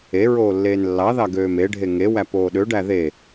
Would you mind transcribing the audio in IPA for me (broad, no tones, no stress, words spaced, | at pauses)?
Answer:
e ɹoːlːeːnlːɑðɑ ɡøːmeɖʱe ŋewæp oːɗøɖæ ðe